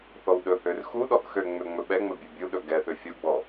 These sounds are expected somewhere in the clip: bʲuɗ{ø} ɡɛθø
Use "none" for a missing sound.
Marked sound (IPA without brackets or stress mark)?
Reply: ɵ